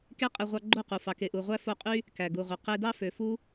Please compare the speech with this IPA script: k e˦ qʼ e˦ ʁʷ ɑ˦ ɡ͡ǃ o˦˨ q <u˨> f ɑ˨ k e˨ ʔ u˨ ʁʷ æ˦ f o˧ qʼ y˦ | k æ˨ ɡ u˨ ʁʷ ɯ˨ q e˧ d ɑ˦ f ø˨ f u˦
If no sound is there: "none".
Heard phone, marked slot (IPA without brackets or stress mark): u˨